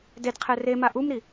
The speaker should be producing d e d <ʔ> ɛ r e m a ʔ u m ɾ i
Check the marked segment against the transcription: incorrect: qʰ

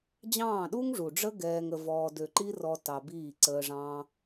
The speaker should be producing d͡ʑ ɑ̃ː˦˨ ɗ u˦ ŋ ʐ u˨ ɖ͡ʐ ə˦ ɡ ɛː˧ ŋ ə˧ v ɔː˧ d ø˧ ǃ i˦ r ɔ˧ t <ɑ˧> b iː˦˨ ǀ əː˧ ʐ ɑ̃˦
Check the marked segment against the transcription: correct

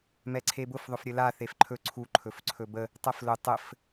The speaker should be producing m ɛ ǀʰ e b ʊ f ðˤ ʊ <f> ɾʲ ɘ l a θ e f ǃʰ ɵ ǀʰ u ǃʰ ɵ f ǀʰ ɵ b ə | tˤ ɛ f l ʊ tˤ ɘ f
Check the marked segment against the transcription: correct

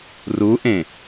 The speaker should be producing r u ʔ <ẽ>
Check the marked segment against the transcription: correct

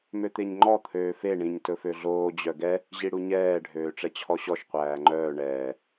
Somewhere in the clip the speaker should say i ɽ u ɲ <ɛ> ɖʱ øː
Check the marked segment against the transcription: incorrect: ɛː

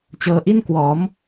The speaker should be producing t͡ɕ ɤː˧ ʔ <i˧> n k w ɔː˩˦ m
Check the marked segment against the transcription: incorrect: i˥˩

